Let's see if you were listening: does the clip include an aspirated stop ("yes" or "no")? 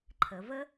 yes